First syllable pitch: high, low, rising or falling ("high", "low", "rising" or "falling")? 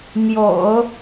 low